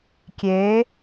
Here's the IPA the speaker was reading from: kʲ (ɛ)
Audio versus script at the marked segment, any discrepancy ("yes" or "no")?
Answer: yes